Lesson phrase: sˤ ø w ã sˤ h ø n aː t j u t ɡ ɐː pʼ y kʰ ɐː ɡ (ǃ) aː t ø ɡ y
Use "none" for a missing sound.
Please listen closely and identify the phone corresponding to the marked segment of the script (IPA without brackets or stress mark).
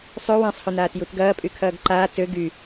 ǃ